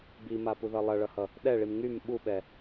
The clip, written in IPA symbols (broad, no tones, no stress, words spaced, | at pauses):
bimapuðʌ lˠʌɭʌhʌ | ɗɛɭim ŋym ɓuɓɛ